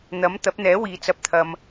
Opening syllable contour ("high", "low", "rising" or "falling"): rising